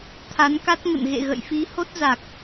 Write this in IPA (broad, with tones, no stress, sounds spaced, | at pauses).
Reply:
t̪ʰ a˨˦ n k a˦˥ t̚ ŋ ə̰˧˨ n ɣ ḛ˧˨ ɣ ə̰˧˨ j f i˨˦ h o˦˥ t̚ z a˨˩ k̚